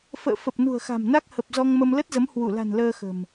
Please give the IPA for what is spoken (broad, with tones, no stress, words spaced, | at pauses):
fə̰ː˧˨ fə˨˩p̚nṳ˨˩ə̯xa̤˨˩m na˦˥k̚hə˨˩p̚ zɔ˧ŋmə˧mlə˦˥t̚zə˨˦m hwu˧˩la̤˨˩n ləː˧xə̤˨˩m